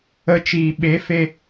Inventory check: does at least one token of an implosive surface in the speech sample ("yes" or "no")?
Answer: yes